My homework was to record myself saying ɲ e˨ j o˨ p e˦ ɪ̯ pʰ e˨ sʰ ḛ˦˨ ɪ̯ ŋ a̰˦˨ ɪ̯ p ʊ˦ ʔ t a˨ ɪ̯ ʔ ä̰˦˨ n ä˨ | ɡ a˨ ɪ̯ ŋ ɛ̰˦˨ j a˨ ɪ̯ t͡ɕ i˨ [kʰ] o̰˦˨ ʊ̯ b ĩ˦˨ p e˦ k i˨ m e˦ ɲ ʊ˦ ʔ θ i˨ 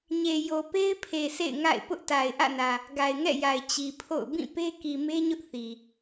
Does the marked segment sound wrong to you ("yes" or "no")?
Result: yes